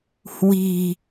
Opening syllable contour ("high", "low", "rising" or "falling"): low